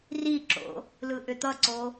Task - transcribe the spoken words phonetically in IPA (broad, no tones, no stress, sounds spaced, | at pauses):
r i ǁ o̰ | l ɯ ʔ ʏ t̪ ʌ ǀ o